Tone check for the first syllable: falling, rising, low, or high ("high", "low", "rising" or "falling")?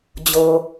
low